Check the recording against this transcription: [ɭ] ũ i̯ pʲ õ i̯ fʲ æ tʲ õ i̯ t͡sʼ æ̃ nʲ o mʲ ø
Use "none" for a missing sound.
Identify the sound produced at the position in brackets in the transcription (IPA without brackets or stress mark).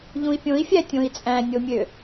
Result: ʎ